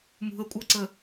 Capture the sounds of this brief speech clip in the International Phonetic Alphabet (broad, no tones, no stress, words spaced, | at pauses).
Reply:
mṳə̯kʷʼɤǀə